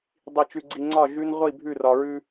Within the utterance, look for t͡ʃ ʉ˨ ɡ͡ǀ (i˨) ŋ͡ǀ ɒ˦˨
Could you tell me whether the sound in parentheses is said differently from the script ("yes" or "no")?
no